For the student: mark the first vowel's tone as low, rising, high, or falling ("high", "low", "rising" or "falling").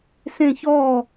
falling